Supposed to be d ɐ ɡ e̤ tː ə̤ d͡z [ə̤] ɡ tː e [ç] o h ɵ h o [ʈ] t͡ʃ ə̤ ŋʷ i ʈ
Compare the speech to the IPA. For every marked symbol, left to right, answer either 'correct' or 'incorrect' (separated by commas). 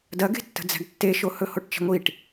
incorrect, incorrect, correct